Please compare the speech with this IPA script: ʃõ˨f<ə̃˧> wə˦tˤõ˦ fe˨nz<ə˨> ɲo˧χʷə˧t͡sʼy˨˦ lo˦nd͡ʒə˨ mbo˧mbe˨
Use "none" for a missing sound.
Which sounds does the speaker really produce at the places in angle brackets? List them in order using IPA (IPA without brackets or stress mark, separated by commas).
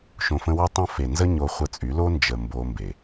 ə̃˧, ə˦